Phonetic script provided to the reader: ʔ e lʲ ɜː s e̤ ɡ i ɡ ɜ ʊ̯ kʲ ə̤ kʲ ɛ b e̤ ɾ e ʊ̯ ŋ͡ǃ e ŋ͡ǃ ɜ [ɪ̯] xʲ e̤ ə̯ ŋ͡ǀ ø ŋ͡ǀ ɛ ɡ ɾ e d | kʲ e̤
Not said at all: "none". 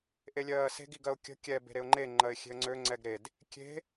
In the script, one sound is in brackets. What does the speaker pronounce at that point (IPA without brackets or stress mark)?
ɪ̯